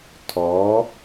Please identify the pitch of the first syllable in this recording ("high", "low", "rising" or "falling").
rising